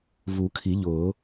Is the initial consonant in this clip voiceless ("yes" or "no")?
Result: no